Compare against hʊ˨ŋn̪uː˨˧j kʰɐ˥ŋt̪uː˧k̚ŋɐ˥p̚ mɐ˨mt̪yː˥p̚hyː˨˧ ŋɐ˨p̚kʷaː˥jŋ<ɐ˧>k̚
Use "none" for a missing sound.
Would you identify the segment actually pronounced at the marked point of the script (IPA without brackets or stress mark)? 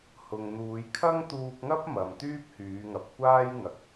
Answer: ɐ˨˥